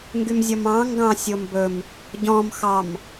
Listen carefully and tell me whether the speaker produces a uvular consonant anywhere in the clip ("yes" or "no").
no